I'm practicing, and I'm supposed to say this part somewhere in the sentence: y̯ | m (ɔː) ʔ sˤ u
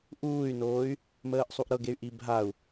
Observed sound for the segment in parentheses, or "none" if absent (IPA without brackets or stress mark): əː